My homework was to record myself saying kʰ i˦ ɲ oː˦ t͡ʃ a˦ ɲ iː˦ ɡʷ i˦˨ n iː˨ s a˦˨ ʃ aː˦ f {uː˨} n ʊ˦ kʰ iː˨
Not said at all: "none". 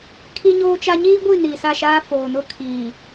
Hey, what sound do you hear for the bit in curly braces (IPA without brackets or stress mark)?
oː˨